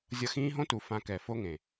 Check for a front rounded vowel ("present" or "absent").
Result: absent